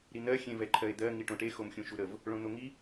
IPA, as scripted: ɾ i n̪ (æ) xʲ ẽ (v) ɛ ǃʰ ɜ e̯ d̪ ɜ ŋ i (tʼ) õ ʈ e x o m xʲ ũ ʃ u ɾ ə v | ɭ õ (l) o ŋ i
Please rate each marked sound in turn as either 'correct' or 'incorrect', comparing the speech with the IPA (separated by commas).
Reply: incorrect, correct, incorrect, incorrect